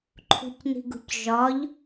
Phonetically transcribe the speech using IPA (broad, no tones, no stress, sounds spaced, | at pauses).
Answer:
ǃʰ ṳ c n i̤ ɡ ṳ c ʒ ɒ ʎ